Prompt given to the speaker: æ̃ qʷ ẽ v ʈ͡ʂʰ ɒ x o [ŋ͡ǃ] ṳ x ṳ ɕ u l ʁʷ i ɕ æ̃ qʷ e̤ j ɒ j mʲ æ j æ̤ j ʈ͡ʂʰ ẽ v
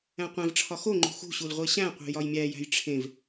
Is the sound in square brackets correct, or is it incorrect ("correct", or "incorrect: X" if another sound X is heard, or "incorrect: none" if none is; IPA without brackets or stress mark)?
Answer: correct